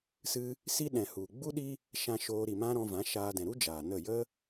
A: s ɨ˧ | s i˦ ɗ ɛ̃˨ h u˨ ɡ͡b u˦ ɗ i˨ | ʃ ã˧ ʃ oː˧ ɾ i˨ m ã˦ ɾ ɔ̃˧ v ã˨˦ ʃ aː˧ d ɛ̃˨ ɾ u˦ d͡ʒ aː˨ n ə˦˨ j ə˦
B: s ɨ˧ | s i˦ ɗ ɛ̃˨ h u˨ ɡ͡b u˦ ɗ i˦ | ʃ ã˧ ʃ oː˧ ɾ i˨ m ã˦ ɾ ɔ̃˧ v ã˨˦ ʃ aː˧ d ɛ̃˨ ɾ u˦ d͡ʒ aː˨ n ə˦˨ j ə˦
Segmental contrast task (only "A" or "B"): B